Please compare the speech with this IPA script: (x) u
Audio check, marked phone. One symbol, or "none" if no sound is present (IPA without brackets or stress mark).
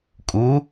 kʼ